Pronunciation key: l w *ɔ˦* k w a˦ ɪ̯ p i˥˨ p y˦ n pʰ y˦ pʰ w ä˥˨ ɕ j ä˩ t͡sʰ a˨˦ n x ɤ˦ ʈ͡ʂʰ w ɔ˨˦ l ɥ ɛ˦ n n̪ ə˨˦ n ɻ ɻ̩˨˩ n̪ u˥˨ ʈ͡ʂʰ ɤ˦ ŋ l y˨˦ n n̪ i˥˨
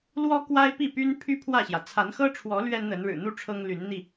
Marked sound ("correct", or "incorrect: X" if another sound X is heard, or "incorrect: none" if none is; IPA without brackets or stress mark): correct